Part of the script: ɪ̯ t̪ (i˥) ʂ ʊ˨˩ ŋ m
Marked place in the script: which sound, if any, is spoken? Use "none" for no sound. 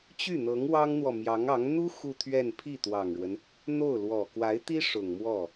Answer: i˥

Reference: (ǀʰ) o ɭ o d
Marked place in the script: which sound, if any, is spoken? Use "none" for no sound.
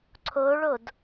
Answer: ǀʰ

